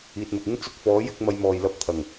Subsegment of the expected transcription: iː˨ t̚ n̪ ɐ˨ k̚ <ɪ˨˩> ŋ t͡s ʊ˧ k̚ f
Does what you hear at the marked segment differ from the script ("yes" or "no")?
yes